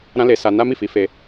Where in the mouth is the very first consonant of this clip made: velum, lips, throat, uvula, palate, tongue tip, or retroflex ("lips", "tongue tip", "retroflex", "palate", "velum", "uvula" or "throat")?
tongue tip